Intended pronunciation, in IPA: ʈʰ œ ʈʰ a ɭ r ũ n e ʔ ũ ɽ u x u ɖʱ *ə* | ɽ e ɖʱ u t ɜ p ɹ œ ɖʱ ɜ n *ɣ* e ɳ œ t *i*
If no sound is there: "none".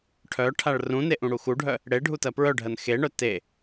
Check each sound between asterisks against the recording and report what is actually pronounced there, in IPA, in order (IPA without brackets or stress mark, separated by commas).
œ, x, e